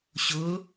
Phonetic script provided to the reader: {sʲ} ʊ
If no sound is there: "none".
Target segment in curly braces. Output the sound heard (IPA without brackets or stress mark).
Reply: ɕ